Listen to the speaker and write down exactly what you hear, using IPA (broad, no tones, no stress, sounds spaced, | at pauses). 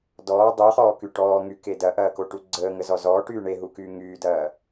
d ɔː dˤ u χ ɔː k y ʈ ɔː ŋ y k e d ɐ ʔ ɐː k o ʈ u ɡ͡ǀ əː ŋ ə z ɔ z ɔː ʈ yː ɳ e ɦ u k yː ŋ yː d ɐː